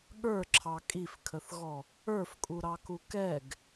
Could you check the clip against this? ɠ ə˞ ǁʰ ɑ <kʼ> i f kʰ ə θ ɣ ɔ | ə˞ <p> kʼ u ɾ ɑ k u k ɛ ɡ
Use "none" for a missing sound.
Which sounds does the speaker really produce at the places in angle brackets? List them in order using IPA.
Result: kʼ, f

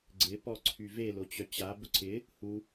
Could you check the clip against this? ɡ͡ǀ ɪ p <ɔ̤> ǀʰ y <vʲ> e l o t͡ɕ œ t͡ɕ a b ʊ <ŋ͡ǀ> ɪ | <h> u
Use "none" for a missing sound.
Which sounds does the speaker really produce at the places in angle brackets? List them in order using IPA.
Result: ɔ, v, ǀʰ, h

